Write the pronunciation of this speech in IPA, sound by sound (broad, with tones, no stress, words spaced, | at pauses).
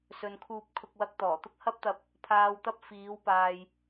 sɵ˨nkʰuː˧p̚kʰʊ˧k̚wɐ˧k̚ t̪ɔː˨˩t̪ʊ˥k̚hɐ˥p̚t̪ɐ˧p̚ | pʰaː˨wt̪ɐ˧p̚ fiː˨˧wpaː˨j